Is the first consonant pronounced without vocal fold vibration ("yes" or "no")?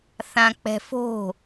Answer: yes